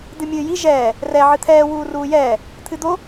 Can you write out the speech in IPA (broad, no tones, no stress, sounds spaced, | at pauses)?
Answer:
d̪ ɨ mʲ ɨː j i ʒ ɛː | r ɛ ʕ ɨ t̪ʰ ɛː w uː r uː j ɛː | t̪ʰ ɨ d̪ o